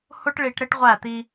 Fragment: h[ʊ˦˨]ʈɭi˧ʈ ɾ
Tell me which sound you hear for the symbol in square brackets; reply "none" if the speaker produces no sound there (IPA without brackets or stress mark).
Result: ʊ˦